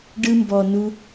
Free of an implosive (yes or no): yes